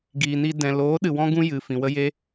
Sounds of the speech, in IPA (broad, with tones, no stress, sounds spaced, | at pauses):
ɡ iː˨ n i˧ d ɛ̃˨ l oː˨˦ ɗ ɨ˧ w ɔ̃˦ ɡ ũ˦ j ɨ˨ f ĩ˨ w ə˦ j e˦